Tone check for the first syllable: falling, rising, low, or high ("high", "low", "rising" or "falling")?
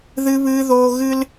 high